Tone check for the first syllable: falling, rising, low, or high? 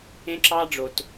high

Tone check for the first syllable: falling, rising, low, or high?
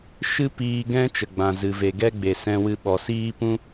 high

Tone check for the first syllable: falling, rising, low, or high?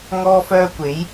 high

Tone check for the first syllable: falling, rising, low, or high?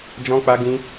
high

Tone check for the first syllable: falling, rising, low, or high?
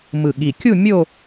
low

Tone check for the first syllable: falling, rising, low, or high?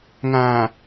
low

